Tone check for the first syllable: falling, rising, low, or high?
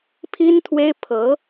high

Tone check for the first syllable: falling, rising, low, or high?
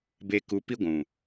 low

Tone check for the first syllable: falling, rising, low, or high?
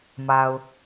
low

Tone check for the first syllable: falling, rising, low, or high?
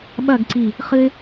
falling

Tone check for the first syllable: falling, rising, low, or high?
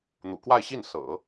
low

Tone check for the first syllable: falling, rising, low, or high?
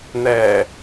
low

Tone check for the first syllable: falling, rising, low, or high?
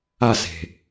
falling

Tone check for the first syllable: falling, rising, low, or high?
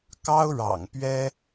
high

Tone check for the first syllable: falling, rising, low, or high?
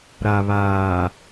low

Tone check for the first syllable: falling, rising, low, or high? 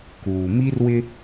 low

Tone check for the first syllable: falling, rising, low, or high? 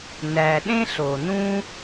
low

